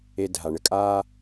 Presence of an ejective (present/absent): present